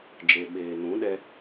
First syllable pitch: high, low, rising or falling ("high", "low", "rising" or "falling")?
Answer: low